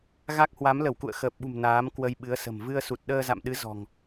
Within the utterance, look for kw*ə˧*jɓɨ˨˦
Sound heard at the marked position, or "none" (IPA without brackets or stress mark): ə˧